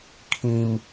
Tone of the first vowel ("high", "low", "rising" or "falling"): low